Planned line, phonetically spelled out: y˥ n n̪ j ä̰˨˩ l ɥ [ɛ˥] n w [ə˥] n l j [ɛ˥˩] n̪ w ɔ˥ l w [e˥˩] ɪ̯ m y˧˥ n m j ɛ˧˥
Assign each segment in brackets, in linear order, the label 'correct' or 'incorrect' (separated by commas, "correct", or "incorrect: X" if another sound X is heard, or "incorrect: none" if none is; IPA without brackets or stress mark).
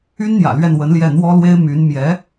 incorrect: ɛ˥˩, incorrect: ə˧˥, correct, incorrect: e˥